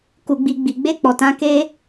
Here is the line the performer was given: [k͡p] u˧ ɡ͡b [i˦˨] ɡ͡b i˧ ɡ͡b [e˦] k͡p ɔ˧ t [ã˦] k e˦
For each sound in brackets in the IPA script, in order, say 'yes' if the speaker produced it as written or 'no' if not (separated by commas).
no, no, yes, yes